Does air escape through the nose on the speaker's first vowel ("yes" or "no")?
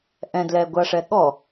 yes